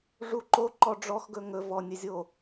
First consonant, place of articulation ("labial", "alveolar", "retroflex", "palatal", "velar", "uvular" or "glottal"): retroflex